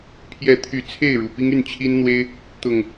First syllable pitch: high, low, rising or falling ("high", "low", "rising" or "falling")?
rising